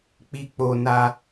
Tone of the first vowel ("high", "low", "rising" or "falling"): high